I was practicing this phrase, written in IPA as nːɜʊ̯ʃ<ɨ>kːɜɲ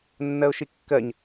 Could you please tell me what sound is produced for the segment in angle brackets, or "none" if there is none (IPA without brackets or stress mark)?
i